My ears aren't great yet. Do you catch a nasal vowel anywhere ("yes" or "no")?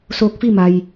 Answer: no